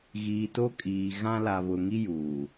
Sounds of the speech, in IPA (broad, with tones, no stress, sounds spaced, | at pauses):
ɣ iː˨ t o˦ kʼ iː˨ ɣ ã˦ l a˨ β ʊ˨ ŋ i˦ j uː˨